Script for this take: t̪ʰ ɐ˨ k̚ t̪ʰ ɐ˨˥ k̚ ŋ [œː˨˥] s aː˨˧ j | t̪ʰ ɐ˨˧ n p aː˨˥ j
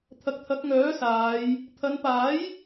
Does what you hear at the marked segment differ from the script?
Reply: no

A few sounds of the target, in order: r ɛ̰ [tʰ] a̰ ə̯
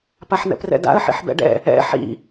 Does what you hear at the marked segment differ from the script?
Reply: yes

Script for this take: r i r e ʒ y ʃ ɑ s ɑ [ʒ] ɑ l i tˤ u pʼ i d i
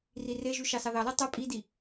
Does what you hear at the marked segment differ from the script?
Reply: yes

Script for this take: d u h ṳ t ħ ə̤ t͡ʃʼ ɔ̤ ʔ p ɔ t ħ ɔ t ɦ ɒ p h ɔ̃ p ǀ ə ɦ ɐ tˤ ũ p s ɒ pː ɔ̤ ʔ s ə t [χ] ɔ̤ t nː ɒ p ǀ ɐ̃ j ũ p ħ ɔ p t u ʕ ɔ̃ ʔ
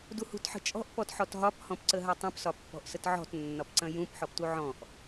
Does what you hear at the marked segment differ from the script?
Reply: yes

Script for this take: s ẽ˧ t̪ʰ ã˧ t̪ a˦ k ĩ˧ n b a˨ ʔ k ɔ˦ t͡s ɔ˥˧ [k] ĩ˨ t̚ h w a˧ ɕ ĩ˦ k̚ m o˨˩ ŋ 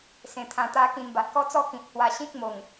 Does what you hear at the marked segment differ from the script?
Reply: no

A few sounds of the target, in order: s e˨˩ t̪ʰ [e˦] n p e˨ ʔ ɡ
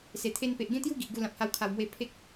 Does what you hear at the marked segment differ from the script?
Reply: no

